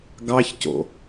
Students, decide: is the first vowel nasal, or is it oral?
oral